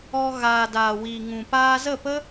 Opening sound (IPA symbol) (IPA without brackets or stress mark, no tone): ɔ